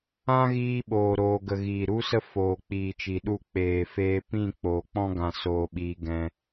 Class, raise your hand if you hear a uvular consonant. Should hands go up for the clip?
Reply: no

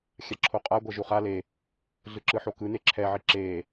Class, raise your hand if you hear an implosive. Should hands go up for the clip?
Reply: no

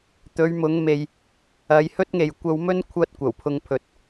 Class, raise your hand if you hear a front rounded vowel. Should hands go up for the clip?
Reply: no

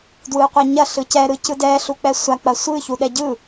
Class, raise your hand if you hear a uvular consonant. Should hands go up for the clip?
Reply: yes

